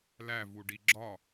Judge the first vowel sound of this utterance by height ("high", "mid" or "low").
low